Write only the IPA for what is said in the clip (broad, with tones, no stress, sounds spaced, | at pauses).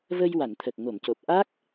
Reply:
v ə˧ j w a˨˩˨ n t̪ʰ ə˨˩ k̚ ŋ o˨˩˨ m c o˨˩ p̚ ʔ a˦˥ k̚